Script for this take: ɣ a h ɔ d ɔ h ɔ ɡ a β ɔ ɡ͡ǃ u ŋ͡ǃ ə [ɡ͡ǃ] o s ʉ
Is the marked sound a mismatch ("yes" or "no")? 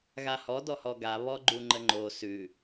yes